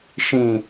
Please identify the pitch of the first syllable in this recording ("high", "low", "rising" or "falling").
low